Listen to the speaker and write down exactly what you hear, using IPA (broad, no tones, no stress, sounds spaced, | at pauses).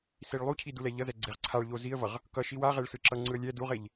s i ɭ lˠ u cʰ i d u l ɛ ʎ ʌ z ɛ ɡ͡ǀ e ʁ ǀʰ a ɭ ʎ o z i ə̯ v ʌ ʁ | k ʌ ʃ i w a ʁ e ɭ s ɯ ǁ ʌ ŋ͡ǀ ɯ ə̯ lʲ ɛ d u ʁ e ʎ